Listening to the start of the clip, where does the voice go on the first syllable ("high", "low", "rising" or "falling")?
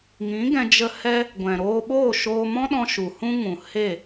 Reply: rising